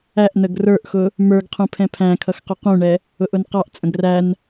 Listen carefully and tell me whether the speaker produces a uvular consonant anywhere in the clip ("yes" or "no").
yes